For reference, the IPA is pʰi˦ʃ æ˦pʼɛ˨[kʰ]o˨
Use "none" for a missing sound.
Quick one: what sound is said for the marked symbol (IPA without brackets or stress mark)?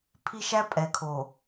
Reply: kʰ